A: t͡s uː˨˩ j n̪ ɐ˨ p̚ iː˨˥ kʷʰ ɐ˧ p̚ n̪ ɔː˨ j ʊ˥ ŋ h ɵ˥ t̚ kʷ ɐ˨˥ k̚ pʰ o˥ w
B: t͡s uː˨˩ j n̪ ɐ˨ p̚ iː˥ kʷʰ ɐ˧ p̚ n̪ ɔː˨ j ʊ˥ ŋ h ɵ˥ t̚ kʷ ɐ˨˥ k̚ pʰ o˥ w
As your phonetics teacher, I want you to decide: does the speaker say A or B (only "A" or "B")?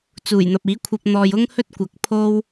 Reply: A